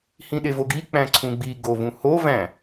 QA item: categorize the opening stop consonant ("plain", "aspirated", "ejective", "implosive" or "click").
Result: implosive